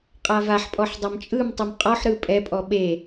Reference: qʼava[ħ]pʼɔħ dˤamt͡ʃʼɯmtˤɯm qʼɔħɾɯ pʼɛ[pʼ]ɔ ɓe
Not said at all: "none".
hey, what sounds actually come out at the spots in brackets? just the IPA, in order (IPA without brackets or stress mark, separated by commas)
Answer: ħ, pʼ